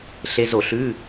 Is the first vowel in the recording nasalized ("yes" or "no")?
no